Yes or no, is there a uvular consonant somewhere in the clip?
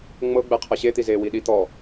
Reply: yes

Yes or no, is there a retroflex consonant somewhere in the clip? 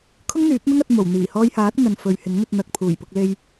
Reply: no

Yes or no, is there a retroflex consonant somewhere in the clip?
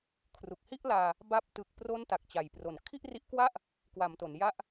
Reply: no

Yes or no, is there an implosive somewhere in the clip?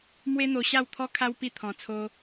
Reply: no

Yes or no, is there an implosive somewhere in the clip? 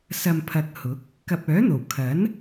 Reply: no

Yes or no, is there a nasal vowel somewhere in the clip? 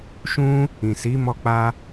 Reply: yes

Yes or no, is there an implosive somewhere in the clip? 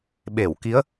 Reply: yes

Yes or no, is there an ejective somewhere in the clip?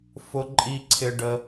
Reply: yes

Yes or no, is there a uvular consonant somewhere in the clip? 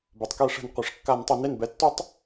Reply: yes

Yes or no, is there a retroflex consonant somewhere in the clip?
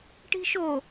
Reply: yes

